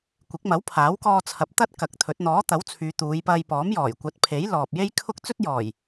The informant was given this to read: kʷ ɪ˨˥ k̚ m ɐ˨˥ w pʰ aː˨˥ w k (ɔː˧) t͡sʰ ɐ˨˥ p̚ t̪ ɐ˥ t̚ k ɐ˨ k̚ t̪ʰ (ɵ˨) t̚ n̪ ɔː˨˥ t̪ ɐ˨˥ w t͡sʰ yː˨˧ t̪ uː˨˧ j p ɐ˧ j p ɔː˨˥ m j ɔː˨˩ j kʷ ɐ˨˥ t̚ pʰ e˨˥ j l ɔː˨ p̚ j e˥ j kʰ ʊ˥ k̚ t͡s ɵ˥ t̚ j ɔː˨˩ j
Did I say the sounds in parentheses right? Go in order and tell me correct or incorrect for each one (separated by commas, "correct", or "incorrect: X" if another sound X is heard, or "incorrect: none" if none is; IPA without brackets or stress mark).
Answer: correct, incorrect: ɵ˨˥